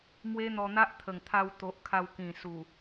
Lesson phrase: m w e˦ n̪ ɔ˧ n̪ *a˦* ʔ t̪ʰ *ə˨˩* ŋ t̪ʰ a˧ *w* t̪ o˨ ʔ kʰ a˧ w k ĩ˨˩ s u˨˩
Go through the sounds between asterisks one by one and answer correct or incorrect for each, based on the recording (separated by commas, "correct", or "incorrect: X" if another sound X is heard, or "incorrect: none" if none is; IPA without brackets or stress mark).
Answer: correct, correct, correct